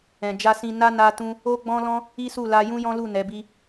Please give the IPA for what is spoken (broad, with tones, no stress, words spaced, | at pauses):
ɛ̃˨d͡ʒa˧sĩ˧ na˦ na˧tũ˧ | o˦ɡ͡bɔ̃˦lɔ̃˦ | i˦su˦˨la˧ jũ˦jɔ̃˦lu˦˨ nɛ˨˦bi˦